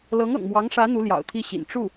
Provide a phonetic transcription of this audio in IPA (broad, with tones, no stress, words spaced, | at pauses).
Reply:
lɤ˧˥ŋɤ̰˨˩ŋmwɑ˧˥ŋʂä˧˥ n̪u˧˥ ljɑ̰˨˩ʊ̯t̪ʰi˥˩ɕḭ˨˩n ʈ͡ʂu˥˩